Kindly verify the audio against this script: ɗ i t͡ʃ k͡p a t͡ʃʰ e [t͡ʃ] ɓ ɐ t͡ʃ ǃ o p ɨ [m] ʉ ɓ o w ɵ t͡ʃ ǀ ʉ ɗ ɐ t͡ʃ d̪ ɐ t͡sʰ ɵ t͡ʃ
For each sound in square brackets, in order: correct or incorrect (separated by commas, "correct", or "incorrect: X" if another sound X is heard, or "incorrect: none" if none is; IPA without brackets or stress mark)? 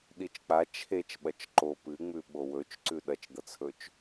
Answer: correct, incorrect: ŋ͡m